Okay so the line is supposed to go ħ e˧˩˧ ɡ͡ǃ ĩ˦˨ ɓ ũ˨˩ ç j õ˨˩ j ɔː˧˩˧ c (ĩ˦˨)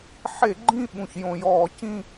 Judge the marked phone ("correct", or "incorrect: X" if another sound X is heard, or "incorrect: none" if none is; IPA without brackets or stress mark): correct